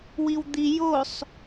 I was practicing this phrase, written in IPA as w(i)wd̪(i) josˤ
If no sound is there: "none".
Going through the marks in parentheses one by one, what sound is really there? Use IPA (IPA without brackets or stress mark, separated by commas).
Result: i, i